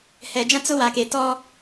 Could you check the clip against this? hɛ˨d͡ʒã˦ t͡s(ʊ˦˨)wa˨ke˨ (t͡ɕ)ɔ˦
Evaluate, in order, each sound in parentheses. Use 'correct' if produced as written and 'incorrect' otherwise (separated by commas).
incorrect, incorrect